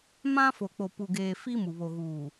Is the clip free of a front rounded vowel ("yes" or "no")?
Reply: yes